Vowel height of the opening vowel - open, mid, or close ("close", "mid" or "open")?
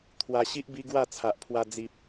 open